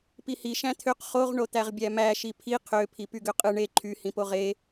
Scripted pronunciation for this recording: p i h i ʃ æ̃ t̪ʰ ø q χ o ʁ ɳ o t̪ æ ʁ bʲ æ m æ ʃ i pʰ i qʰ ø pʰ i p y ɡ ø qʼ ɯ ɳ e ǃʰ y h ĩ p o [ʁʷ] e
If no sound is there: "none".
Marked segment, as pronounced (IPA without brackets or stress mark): ʁ